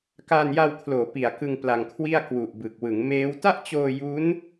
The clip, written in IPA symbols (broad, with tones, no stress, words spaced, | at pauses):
kaː˧nja˧wkʰloː˩˦ pi˨˩a̯ kɯ˧ŋ pla˧ŋkʰwi˥˩a̯ kwu˨˩ʔbɯ˨˩k̚wɯ˩˦ŋ meː˦˥w ta˥˩ʔt͡ɕoː˧ ju˦˥n